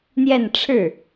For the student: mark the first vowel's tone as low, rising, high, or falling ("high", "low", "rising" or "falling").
falling